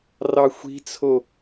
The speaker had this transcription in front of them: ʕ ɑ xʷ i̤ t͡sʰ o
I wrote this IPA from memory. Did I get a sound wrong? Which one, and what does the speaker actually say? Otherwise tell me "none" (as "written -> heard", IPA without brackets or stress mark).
ʕ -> r